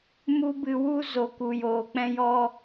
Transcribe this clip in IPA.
m u˦ b ɨ˧ w u˧ z o˨ k u˨ j oː˨ k͡p ɛ̃˧ j ɔ˧

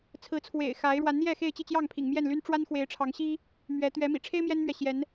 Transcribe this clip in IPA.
t͡sʰ ɹ̩˨˦ t͡sʰ w ḛ˨˩ ɪ̯ x a˨˦ ɪ̯ ɻ w a˨˦ n n̪ j ɛ˥˨ x e˥˨ ɪ̯ t͡ɕ i˥˨ t͡ɕ j ɑ˥˨ ŋ pʰ ḭ˨˩ ŋ m j ɛ˥˨ n l y˦ n ʈ͡ʂ w a˦ n x w e˨˦ ɪ̯ ʈ͡ʂʰ ɑ˨˦ ŋ ɕ i˦ | m ɥ ɛ˨˦ t̪ ɥ ɛ˨˦ m ḭ˨˩ ʈ͡ʂʰ e˦ ɪ̯ m j ɛ˦ n m ɥ ɛ˨ ɕ j ɛ˨˦ n

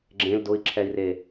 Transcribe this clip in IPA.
ɡ͡ǁ ẽ l d ʊ i̯ ǁʰ ɛ i̯ r e

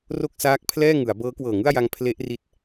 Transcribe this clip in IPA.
r o˥˩ k̚ s aː˦˥ k̚ pʰ l ɛː˥˩ ŋ ɯ˩˦ a̯ b ɤː˦˥ k w ɤː˨˩ ŋ ɯ˥˩ a̯ j a˧ ŋ pʰ l e˦˥ ʔ r i˦˥ t̚

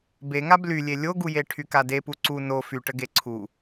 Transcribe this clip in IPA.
b e ŋ a b l y lʲ e lʲ o ɡ u j e ʈʰ y k a d e p u ǀ u n o f y ʈ ə ɡ e ǀʰ u

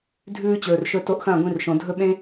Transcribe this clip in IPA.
dʱ ʉː˦ t͡ɕ ɵː˨ r ʃ ɵ˦ t o˧ ʔ x ɐ̃ː˦˨ ɡʷ ĩ˧ r ʃ õ˨ dʱ ɵ˦ ɓ ẽ˦

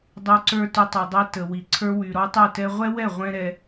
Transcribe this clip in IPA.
dˤ y˧ ǀ ə˞˦ t y˧ tˤ y˨ dˤ i˧ t ə˨ w i˨ ǀʰ ə˞˧ w y˨ ɾ ɔ˦ tˤ y˦˨ t ɛ˦ ʁʷ ɛ˦ w ɛ˦˨ ʁʷ ɛ̃˦ ɾ ɛ˧

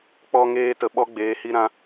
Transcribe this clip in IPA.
k͡p ɔ˧ ŋ eː˧ t ə˨ ɓ ɔ˦ ɡ͡b eː˨˦ h i˦ ɾ ã˦

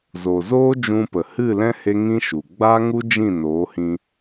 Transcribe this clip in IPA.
z o˨ z oː˦ d͡ʒ ũ˧ p ə˨ h ɨ˦˨ l ɛ̃˦ h e˦ ŋ ĩ˦ ʃ u˨ ɡ͡b a˦ ŋ u˦ d͡ʒ ĩ˦˨ n oː˨˦ h ĩ˧

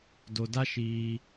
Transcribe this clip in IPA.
d o˨ d a˦ ʃ iː˧

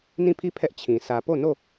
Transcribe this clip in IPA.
n ĩ˦˨ pʰ i˦˨ pʰ ɛ˦ ʔ t͡ɕʰ ĩ˨ sʰ ä˨ p o˦˨ n o˦˨

